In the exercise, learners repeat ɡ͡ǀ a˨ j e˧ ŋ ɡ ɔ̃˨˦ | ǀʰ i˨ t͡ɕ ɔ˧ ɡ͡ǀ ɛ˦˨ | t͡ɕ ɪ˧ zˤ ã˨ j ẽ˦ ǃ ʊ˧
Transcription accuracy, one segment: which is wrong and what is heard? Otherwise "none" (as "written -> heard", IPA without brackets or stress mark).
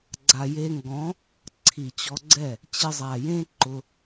ã˨ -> a˨